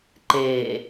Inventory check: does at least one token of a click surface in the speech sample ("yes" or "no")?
yes